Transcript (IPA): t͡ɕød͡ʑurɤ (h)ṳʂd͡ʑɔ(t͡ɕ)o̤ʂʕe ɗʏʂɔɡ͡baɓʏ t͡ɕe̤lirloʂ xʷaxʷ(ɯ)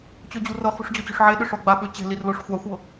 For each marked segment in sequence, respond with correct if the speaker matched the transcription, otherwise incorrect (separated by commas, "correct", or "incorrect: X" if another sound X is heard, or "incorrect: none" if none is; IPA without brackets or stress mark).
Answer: incorrect: χ, correct, incorrect: ɤ